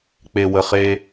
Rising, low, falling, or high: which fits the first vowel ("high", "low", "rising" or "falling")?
low